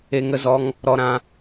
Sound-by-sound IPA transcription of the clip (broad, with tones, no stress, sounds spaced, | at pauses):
e˧ ŋ ə˧ z ɔ˧ ŋ | ɾ ɔ˧ ɾ ã˧